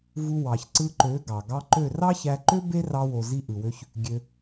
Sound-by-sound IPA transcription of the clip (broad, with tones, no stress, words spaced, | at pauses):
vu˧ wɑ˨çǀɯ˧ǃø˨˦ ɡɑ˨ ɡɑ˧ǃø˦˨ rɑ˦çæ˧ǃø˦ be˦rɑ˧wo˨ zi˧ʔɯ˨wø˧ç | ɡʲø˧